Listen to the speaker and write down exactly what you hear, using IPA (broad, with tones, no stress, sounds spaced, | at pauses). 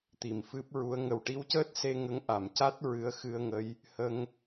t̪ i˨˩ m f ɨ˦˥ p̚ ɹ u˧˥ ə̯ ŋ ə˨˩ w ʈ i˧ w c əː˦˥ t̚ s e˧ ŋ ə˧˥ ŋ ʔ a˨˩˨ m c a˦˥ t̚ ɹ ɨ˧˥ ə̯ x ɨ˧ ə̯ ŋ ə˧˥ j | h ə˧ ŋ